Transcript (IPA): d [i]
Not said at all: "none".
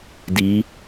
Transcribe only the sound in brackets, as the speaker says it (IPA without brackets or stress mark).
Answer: i